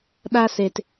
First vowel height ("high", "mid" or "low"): low